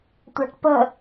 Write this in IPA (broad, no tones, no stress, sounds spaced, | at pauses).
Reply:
tʷ a̤ ʈ p ə̤